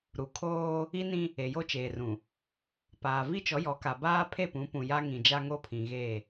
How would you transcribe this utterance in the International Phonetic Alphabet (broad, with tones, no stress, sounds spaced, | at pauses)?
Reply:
ɾ u˨ kʰ oː˦ | i˦ n ĩ˦ | e˨ j o˦ t͡ʃ eː˨ r ũ˨ | p aː˨ v i˦ t͡ʃ ɔ˨˦ j ɔ˨˦ k a˨ b aː˦ pʰ e˦˨ p ũ˨˦ p ũ˨ j a˦ ŋ ĩ˨ d͡ʒ a˦ ŋ o˦ pʰ ĩ˨ ɣ e˦˨